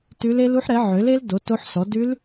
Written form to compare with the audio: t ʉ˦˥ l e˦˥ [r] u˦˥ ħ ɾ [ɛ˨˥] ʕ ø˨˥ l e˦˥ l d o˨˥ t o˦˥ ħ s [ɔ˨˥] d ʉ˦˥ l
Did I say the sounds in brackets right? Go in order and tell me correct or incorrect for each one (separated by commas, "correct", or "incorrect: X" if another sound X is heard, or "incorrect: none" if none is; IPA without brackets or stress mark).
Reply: incorrect: l, correct, correct